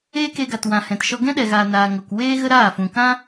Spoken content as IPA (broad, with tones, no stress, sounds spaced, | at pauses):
eː˦ k e˧ ɡ a˨ t w ã˨ h ɛ̃˨ t ʃ ɔ˧ ɡ ɛ̃˦ ɗ ɛ˨ ɣ aː˨ n aː˨ ŋ o˨ k w eː˦ ɣ ə˦ ɾ aː˦˨ f ũ˨ k ã˦